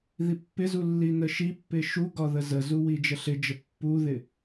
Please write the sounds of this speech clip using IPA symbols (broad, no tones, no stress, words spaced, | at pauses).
ðipːɪzu lːinəʃipːɪ ʃuɡɒ ðəzəzu wid͡ʒəɬɪd͡ʒə pːuðɪ